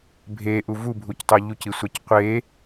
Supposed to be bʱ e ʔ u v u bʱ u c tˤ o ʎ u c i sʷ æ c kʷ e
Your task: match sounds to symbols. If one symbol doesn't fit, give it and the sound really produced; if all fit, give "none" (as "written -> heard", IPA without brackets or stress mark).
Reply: kʷ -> qʷ